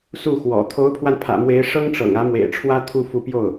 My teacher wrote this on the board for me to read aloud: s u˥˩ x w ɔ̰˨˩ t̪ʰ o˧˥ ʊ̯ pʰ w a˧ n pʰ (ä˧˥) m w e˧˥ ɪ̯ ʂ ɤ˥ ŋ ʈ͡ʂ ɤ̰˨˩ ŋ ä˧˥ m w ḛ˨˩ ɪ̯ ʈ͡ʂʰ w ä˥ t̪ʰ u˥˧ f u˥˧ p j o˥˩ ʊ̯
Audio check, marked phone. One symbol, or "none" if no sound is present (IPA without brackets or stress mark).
ä̰˨˩